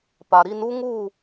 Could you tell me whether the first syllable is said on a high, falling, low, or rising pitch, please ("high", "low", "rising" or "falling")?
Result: low